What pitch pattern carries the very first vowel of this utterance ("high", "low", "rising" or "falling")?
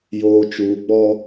low